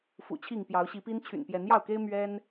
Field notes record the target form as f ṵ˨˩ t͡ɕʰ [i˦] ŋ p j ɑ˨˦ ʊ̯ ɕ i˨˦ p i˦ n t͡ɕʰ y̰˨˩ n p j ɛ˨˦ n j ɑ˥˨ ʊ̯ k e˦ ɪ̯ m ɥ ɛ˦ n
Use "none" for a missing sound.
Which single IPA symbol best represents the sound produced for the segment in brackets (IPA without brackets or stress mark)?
i˥˨